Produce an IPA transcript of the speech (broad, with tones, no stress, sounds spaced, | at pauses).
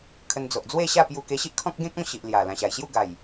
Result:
kʰ ə˧ n d͡z o˨ ʔ d͡z w e˥˧ ɕ a˥˧ p j u˧ k e˧ ɕ i˦ ʔ kʰ ɔ̃˦ k̚ ɡ ẽ˦ k̚ ɔ̃˥˧ ɕ i˨ ʔ l j a˨˩ l ã˨˩ ɕ a˨˩ j ɕ j u˥˧ ɡ a˨˩ j